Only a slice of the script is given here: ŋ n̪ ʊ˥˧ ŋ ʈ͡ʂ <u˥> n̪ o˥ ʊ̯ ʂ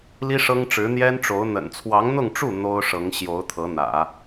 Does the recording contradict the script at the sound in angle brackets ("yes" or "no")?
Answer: yes